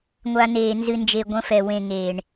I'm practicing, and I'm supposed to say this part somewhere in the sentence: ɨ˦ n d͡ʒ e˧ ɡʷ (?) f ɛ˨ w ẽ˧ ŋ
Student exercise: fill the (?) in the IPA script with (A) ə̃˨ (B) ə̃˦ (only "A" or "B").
B